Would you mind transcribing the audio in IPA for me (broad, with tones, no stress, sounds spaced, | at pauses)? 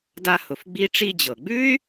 d a˧ h ʊ˩ f ɡ͡b i˧ ʈ͡ʂ i˧ d͡ʑ ɤ˩ ɡ͡b ʉ˥ y̯